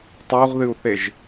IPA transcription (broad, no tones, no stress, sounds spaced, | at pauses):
tˤ u ʁ ð ɨ u̯ θ e ʒ